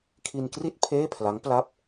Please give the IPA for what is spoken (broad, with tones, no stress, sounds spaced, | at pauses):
kʰ i˧ n k r i˥˩ t̚ pʰ eː˥˩ pʰ l a˦˥ ŋ p l a˥˩ p̚